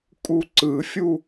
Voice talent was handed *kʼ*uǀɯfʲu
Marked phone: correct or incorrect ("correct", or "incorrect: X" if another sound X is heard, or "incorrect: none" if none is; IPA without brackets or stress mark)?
correct